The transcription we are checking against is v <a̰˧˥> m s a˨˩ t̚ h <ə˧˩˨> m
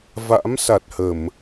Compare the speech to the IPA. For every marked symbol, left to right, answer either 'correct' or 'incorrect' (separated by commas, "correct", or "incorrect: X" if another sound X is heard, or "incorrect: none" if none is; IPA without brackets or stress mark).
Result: correct, correct